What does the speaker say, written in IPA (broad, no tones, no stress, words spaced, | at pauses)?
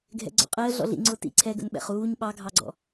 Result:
ɡʱɛ̰ɡ͡ǀɔ̰qʼəː ɮɔ̰ɮḭ ŋ͡ǀʊːtḭ ǀʰɛɡə̰n ɓɛ̰χuːɲ ɓɑɡʱɑɡ͡ǀɔ̰